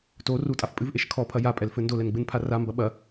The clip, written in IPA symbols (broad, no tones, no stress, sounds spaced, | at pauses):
t o r u tʼ a f pʼ ɨ v ʔ e ʃ kʰ ɔ pʰ ɐ j a pʼ ɛ l f ɘ n d o l ɛ n ɡ͡b ɨ n pʰ a r a m b ɐ ɓ ɐ